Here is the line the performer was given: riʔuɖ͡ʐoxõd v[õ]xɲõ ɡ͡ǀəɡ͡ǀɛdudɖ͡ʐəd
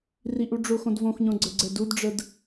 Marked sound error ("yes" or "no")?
no